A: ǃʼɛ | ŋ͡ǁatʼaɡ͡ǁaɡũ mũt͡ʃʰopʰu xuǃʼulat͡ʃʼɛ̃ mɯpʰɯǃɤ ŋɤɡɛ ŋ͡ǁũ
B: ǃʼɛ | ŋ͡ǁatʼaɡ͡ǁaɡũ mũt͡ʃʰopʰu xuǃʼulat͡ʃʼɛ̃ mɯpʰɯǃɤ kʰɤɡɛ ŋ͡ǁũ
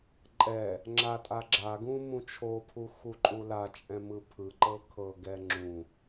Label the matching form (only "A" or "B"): B